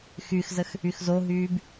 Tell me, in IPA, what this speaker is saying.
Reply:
xyxzəx | yxzoɦyːb

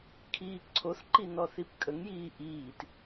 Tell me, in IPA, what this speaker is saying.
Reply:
kʰiːǀʰoθǃi nɔθipkʼəŋjiː ʔiːt

